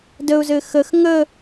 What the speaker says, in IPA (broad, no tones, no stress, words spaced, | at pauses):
dəʊ̯zɘ xəx ŋə